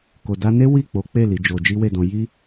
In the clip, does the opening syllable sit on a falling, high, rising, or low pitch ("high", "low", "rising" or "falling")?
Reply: low